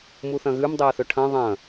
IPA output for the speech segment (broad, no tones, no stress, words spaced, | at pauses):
muθɐ̃ɣʉm dˤeə̯θɵʈʰɐ̃ ðˤɐ̃